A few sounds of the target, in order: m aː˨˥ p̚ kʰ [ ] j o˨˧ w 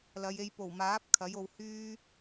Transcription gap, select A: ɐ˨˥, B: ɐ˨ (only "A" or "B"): A